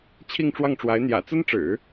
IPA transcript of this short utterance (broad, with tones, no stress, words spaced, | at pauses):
t͡ɕʰi˥˧ŋʈ͡ʂwɑ˥˩ŋʈ͡ʂwa˧˥ɪ̯ n̪jä̰˨˩t͡sə˥nʈ͡ʂɻ̩˨˩˦